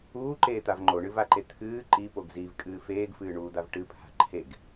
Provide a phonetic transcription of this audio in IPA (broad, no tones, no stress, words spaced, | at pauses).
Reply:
uːǃeːt̪av ŋ͡ǃoɳɨvaǃe t̪ʰɨː ǃipoɡ zivkʼɨː feːɡfɨːɳuːd̪av ʈɨpʰa̤ ǃʰeɡ